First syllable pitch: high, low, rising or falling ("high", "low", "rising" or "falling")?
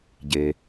low